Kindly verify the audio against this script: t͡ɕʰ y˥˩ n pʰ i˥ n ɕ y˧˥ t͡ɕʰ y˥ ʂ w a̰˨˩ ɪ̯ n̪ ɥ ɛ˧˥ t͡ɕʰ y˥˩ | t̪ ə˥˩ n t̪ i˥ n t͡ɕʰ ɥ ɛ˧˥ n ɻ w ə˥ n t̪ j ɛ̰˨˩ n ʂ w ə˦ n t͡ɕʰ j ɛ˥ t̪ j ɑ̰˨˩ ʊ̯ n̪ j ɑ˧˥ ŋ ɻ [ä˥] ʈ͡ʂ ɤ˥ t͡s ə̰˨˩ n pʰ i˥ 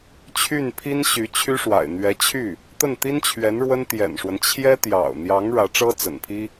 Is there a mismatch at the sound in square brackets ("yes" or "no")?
yes